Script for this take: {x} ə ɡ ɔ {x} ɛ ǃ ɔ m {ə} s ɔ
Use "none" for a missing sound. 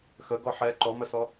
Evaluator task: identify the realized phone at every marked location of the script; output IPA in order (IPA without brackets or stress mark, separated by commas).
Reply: x, ħ, ə